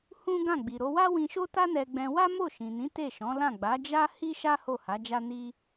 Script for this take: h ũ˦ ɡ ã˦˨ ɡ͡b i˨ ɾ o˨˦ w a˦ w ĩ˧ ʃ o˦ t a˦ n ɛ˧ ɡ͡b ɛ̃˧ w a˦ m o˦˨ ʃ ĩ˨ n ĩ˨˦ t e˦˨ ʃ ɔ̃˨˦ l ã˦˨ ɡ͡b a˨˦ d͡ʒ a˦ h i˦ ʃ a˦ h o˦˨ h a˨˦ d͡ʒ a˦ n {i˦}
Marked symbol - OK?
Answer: yes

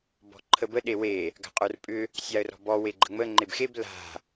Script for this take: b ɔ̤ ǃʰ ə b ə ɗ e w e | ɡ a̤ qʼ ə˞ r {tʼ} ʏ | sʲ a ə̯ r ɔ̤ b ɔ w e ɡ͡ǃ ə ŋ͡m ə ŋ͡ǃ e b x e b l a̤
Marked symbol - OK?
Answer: no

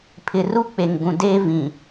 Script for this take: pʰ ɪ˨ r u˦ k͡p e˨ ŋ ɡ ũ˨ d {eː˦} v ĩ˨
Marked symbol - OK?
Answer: yes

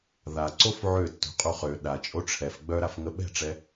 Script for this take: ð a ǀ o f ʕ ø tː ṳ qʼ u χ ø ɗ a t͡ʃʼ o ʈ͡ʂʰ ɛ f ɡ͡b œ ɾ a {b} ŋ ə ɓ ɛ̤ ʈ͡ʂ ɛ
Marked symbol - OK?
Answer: no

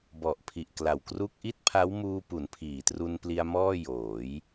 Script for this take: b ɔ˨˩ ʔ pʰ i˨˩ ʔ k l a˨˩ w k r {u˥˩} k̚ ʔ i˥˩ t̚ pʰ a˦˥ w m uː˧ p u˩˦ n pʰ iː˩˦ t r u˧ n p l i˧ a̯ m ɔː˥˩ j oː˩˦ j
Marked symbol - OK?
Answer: yes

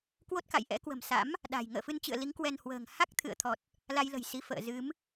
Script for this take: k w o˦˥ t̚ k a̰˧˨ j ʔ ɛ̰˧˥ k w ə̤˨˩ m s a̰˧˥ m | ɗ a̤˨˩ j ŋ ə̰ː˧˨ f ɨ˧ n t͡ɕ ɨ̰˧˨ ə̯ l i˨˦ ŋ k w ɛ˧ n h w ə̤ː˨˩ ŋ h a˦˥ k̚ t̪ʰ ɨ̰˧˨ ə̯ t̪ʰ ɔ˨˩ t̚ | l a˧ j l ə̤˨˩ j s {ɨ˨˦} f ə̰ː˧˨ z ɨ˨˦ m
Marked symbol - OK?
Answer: no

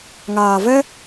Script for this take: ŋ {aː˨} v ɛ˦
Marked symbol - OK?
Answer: yes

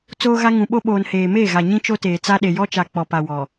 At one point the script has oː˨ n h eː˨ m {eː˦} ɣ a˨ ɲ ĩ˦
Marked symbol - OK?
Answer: no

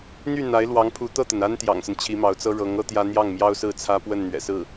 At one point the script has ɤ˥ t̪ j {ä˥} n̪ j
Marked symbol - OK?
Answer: yes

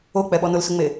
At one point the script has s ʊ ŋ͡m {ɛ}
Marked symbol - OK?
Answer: no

